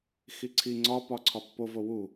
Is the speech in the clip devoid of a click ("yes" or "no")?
no